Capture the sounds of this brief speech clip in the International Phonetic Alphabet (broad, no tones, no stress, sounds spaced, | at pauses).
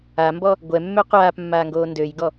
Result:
a m b ɔ | ɡʷ ɛ mː ø qʷ aː p mː aː ŋ ɡ oː n d ø j ɡ ɔ